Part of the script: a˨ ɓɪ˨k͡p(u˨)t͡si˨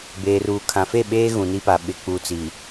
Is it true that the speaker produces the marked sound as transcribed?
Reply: yes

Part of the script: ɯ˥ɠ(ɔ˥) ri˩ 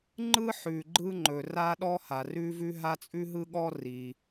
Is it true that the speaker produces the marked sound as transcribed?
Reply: yes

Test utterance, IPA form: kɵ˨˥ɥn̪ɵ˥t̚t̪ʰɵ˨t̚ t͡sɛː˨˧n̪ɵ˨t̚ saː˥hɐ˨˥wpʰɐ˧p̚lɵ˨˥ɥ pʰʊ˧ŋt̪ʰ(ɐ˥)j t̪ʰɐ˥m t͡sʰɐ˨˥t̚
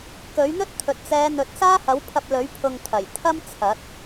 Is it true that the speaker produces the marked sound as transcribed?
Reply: no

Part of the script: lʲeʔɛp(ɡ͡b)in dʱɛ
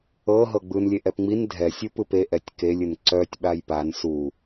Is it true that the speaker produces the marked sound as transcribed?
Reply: no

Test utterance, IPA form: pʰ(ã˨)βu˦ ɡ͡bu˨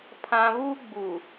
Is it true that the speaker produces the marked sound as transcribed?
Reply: yes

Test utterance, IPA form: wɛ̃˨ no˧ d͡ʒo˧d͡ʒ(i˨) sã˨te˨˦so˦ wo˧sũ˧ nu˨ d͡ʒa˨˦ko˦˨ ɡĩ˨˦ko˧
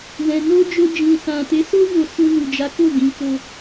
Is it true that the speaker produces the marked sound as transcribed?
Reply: no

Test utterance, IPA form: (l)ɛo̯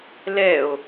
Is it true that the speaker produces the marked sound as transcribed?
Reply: yes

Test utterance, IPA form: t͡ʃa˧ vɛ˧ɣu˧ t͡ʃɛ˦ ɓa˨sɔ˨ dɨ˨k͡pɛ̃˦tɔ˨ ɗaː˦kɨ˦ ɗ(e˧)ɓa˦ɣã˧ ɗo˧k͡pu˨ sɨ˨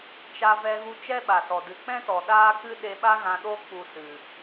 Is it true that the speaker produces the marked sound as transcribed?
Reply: yes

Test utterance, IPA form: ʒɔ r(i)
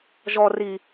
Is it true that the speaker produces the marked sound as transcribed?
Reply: yes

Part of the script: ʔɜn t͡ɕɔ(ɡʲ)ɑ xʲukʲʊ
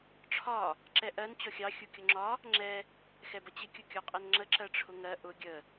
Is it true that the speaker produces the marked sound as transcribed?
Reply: no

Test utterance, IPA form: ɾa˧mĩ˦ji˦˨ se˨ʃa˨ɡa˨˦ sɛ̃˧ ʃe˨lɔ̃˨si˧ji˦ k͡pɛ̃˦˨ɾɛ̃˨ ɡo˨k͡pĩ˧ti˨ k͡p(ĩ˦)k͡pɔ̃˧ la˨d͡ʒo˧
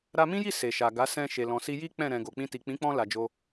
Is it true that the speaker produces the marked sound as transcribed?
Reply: no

